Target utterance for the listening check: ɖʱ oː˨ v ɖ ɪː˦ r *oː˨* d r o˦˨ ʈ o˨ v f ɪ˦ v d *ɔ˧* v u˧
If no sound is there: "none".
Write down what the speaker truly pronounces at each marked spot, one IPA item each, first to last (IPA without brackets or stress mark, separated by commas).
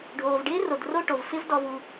o˨, ɔ˧